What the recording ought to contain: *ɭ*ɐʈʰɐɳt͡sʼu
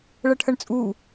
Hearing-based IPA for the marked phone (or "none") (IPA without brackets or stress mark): ɭ